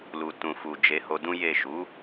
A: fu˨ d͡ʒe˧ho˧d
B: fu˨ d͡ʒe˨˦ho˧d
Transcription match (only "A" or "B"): B